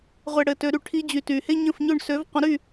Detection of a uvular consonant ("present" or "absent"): present